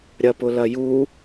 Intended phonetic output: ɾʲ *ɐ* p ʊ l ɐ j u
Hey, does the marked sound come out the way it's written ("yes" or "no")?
yes